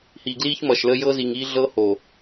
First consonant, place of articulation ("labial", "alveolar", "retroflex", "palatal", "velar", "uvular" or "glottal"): glottal